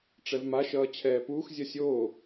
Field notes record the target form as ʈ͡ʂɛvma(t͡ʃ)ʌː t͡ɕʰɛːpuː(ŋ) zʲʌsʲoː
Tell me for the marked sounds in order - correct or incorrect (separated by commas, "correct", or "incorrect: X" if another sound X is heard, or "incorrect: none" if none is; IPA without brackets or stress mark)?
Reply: incorrect: ʃ, incorrect: x